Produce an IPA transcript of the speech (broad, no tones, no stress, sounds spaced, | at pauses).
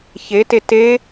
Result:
ç e t e t e